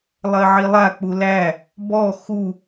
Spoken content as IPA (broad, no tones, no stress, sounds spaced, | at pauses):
lˠ ɜ ʕ i lˠ a k͡p u l æ | b ɔ x u